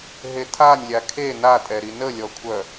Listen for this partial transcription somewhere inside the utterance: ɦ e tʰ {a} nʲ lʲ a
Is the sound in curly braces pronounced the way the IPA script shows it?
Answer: yes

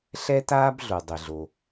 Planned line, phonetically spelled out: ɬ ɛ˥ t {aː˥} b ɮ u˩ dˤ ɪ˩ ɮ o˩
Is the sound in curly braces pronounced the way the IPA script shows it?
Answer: yes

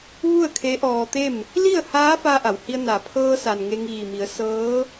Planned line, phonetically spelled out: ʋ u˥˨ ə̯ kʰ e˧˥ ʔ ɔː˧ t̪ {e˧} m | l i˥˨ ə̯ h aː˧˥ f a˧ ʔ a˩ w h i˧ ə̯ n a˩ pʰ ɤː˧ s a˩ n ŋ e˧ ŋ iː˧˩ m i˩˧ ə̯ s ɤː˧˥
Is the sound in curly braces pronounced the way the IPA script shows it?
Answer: no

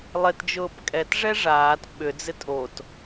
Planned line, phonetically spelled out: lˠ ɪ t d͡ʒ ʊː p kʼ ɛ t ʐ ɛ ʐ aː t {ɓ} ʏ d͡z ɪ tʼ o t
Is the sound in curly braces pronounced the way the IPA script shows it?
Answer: yes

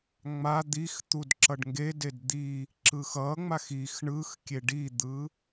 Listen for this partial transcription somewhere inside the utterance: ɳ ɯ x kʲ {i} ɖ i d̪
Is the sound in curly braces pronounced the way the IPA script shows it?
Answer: no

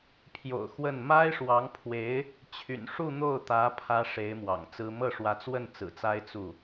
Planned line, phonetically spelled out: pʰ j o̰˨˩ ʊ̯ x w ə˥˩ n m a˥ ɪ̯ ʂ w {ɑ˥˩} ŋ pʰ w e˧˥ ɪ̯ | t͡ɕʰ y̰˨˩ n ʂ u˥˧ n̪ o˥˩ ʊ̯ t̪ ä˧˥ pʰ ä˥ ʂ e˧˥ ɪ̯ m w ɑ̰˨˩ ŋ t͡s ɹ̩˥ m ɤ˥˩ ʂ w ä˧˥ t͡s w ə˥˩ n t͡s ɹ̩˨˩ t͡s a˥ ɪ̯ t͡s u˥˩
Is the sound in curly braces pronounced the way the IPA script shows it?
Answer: no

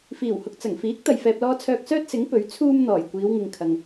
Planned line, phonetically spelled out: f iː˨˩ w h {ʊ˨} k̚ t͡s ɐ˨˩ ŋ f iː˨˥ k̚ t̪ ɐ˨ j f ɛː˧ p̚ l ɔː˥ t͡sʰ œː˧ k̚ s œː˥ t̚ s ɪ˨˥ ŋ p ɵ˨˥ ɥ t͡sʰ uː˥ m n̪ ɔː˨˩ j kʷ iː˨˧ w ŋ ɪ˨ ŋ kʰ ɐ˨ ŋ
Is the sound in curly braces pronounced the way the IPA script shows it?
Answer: yes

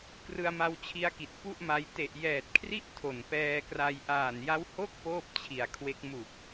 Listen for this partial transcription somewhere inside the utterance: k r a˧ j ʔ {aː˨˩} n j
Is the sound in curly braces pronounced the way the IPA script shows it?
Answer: yes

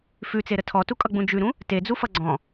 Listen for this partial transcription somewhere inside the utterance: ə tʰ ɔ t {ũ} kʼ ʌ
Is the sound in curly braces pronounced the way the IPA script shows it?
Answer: no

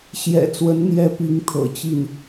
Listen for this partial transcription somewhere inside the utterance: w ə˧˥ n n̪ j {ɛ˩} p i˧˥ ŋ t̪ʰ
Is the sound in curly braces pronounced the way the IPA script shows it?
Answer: no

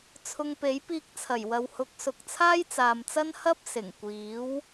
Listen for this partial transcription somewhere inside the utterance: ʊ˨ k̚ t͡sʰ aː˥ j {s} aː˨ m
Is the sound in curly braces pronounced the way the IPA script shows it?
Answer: no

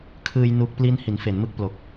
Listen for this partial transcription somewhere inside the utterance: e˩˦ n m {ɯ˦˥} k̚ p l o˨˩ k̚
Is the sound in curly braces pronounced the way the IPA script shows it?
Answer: yes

